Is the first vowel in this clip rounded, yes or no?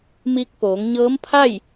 no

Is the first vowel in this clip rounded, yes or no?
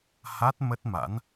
no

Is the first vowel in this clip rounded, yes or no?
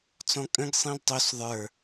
yes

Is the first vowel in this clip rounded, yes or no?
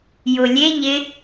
yes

